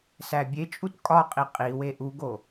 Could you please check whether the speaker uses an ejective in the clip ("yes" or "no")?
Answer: yes